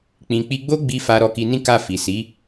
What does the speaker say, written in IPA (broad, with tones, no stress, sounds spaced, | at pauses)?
k͡p ĩ˨ k͡p i˧ ɡ͡b o˦ ɡ͡b i˧ f a˧ ɾ ɔ˧ k i˧ n ĩ˦ k a˦˨ f i˨ s i˨˦